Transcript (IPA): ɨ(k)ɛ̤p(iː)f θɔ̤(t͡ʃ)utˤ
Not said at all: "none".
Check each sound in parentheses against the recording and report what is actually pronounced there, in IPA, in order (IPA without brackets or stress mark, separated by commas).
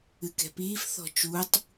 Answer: k, iː, t͡ʃ